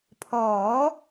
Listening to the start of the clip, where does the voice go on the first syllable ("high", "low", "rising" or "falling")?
rising